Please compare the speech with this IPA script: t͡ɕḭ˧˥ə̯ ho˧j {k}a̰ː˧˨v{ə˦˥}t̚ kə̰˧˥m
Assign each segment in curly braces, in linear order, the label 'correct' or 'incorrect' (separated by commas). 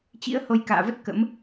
correct, correct